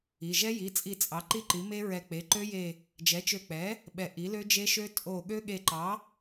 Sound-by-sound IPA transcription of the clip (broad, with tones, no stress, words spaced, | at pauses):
i˩˧˩ ʒɛ˦˥ji˩˧˩t͡sʼi˧˩ t͡sʼɑ˩˥ ǃi˦˥ ǃi˩˥me˦˥ɹɛ˧˩k͡pe˩˧˩ ǃø˦˥je˧˩ | d͡ʒɛ˩˥t͡ʃø˧˩k͡pɛ˩˥ | ɓɛ˧˩ ʔi˩˥lø˦˥d͡ʒe˦˥ʃø˦˥ tʼo˧˩ ɠø˦˥ɠe˧˩ǃɑ˩˥